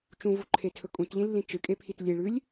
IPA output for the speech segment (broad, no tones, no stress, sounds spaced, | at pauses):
t͡ʃ ũ v u ǃʰ e tʰ ɵ kʼ ũ t ʎ ĩ lː ĩ t͡ʃ ɨ kʼ e pʰ i t lʲ e ɭ ʉ lʲ